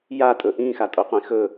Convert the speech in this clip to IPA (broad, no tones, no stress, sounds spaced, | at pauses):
j a tʼ ɵ ʔ ĩː x a tʼ o qʷ ĩ x ɵ